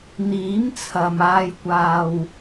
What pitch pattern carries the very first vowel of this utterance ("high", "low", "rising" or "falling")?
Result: rising